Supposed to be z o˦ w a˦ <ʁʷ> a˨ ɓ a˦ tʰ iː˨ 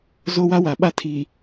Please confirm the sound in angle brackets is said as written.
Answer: no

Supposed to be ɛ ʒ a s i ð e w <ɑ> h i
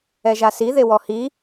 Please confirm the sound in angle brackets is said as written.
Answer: no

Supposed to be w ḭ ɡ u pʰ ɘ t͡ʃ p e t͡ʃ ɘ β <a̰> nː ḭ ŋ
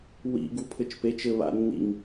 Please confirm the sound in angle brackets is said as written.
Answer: yes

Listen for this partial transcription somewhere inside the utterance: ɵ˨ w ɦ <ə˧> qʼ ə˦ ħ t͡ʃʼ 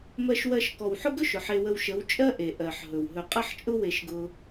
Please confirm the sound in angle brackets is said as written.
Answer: no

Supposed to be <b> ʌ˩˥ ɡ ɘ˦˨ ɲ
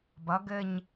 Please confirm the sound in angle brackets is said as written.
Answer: yes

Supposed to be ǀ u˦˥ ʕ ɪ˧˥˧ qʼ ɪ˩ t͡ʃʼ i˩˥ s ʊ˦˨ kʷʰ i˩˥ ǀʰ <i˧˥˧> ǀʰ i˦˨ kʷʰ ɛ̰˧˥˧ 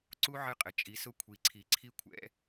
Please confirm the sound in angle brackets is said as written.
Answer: no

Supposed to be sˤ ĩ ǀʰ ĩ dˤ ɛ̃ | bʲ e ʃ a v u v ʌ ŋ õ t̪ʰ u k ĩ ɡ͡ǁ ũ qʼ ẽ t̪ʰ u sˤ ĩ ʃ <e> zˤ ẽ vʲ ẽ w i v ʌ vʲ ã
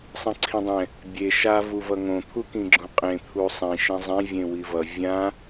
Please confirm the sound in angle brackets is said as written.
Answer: no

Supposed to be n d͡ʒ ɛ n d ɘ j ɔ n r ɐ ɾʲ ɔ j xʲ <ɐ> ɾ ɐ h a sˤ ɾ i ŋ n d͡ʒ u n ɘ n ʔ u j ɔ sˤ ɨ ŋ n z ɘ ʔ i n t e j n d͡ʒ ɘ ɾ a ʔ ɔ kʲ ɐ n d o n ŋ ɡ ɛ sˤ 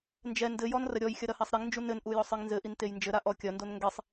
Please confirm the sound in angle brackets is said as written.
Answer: yes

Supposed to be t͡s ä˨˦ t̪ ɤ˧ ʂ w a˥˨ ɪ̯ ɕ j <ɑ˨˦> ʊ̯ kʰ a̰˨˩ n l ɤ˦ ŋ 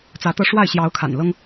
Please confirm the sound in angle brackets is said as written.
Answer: yes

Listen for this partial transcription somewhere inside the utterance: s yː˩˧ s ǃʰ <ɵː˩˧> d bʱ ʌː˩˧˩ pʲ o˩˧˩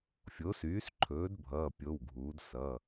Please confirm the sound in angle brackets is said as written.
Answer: yes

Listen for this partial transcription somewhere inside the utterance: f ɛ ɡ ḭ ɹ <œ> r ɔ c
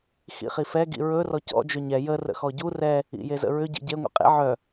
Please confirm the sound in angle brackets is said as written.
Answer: no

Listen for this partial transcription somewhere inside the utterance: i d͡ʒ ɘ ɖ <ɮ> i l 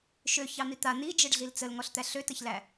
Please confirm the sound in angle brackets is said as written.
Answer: yes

